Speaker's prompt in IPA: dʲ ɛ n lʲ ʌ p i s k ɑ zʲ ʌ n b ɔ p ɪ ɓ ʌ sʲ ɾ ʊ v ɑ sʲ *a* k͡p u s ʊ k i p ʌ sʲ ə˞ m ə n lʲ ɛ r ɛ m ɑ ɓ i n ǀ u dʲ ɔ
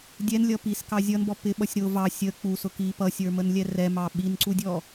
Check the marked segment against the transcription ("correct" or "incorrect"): incorrect